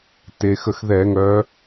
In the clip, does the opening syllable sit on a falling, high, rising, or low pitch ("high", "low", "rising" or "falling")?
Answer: low